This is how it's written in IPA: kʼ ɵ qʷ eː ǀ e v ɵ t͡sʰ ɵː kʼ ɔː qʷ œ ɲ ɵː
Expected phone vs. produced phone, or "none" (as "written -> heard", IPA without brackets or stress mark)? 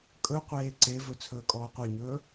none